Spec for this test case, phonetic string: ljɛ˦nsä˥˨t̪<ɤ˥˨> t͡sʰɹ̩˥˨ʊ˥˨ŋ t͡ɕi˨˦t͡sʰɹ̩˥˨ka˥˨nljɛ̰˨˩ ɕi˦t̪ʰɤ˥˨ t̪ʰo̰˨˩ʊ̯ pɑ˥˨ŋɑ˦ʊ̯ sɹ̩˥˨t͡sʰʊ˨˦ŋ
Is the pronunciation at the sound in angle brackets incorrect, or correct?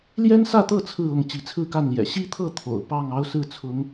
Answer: correct